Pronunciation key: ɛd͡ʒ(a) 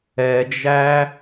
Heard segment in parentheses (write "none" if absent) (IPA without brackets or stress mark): æ